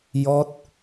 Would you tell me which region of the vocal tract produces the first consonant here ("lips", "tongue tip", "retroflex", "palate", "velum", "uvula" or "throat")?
palate